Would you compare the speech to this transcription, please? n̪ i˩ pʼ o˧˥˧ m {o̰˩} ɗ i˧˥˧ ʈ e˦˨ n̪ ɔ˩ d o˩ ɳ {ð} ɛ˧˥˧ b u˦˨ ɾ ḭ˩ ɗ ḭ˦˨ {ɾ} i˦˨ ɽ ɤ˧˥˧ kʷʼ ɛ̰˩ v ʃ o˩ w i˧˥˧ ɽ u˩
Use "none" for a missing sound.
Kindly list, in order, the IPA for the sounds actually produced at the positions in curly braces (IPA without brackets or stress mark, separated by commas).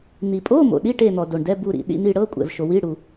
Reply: o̰˩, d, n̪